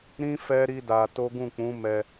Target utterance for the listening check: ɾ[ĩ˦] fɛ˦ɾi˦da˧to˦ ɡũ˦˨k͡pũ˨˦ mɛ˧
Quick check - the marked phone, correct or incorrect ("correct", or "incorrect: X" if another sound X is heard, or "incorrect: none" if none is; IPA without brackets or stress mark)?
correct